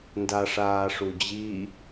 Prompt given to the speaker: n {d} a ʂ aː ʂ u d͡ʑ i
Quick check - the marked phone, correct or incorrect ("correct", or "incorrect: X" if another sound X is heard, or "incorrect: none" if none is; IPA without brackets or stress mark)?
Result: correct